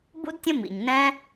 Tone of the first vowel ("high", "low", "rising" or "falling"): high